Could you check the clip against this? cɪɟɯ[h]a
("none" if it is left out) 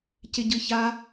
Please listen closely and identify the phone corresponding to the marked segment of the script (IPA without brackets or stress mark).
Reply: ç